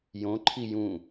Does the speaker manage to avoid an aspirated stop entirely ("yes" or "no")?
no